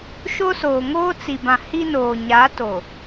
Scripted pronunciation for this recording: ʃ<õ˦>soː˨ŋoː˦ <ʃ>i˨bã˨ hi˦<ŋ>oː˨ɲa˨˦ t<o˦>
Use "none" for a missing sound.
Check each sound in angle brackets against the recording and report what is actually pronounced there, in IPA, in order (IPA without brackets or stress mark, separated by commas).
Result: o˦, t͡s, n, o˨